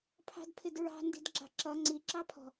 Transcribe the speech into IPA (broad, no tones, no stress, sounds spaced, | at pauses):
pʰ ɑ̤ d pʰ ɪ d ɹ ɑ̤ n d i̤ d ɡ͡ǁ ɑ̤ ǁ ʌ ŋ͡ǀ i ǁ ɑ pʰ ɔ̤